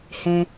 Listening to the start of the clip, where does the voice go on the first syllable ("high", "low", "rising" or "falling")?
low